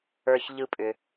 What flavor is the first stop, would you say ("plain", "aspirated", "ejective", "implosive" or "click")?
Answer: ejective